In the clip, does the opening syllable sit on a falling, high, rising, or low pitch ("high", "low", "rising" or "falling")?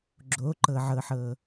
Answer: rising